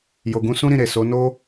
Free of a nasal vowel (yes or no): no